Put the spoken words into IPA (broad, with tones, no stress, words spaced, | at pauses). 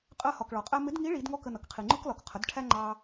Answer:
qʼɜ˧hɒ˩k ɭɒ˩qʼæ˥ mɪ˧˥dŋi˧˥ɭi˩˧d ŋɔ˥kə˧nʌ˩˧kqʰi˩ ŋ͡ǃʊ˥klɒ˩kqʰə˩˧d ʈʰæ˥ŋ͡ǃɑ˧